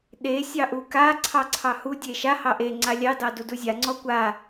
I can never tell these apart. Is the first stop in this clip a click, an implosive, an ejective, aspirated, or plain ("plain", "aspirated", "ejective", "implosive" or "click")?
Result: implosive